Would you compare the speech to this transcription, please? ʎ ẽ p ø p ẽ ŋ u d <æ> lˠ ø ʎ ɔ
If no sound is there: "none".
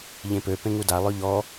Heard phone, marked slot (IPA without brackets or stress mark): a